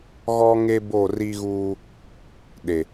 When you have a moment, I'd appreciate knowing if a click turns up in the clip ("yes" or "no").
no